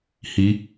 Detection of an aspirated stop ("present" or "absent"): absent